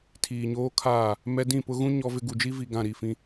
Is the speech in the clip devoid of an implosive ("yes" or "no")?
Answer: yes